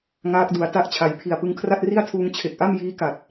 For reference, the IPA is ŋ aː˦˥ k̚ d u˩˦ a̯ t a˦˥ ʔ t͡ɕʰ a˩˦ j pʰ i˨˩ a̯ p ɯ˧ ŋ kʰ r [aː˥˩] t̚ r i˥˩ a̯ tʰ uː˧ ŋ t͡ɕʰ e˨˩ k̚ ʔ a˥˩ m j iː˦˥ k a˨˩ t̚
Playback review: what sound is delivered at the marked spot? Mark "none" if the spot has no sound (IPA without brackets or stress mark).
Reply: a˥˩